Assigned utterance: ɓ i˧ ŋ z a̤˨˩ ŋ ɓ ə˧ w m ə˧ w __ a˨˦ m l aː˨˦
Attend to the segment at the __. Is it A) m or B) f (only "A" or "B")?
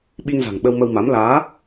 A